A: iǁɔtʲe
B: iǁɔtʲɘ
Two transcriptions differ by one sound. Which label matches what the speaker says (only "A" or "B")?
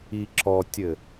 B